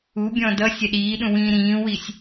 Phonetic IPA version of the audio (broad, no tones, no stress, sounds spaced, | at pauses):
u bʲ ɔ̃ d ʌ sʲ ɛ ɗ iː ɗ ũ w ĩː ɾ ĩː w i sʲ